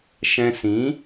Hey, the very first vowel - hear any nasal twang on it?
yes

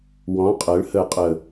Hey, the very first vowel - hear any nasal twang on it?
yes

